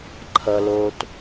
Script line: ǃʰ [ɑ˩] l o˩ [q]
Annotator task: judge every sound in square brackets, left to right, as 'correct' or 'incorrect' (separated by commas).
incorrect, incorrect